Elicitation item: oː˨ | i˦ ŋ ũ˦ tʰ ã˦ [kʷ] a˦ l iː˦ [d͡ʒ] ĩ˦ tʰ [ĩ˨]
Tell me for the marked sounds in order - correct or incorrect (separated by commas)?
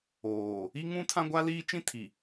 incorrect, incorrect, incorrect